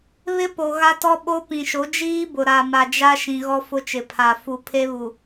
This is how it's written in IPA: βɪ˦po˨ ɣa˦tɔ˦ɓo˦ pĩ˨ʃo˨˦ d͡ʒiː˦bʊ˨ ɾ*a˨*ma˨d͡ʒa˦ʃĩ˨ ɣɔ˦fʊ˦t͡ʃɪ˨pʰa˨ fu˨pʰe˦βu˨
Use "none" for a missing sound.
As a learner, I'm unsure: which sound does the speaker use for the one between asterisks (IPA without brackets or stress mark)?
a˨